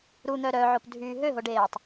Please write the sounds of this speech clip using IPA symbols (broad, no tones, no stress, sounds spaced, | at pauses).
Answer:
ɾ u n̪ œ ɾ œ ʕ o p dʱ yː ɦ ø ɦ o ɖ eː tˤ